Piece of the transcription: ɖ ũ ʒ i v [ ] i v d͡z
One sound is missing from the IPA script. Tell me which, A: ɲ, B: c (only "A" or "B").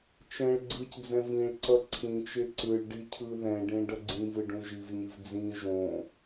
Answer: A